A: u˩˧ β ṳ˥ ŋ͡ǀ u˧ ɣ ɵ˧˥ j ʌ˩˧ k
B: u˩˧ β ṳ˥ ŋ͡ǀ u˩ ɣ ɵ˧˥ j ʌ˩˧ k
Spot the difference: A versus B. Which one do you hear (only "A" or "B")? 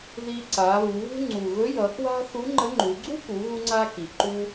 B